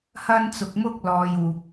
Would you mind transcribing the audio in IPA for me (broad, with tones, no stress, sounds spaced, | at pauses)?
h ɐ˥ n t͡s ʊ˧ k̚ m ʊ˥ k̚ l ɔː˧ j uː˧ k̚